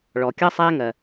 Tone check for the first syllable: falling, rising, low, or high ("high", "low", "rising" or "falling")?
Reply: low